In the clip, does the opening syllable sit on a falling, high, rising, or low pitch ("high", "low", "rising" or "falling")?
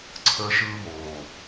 high